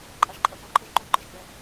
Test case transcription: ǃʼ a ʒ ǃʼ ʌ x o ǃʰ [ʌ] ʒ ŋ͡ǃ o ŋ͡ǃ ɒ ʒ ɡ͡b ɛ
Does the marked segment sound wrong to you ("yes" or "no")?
no